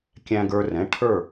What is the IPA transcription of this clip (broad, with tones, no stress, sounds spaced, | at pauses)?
kʲ æ̃˧ ɡ ə˞˧ r ɛ̃˩˧˩ ʈʰ ə˞˧˩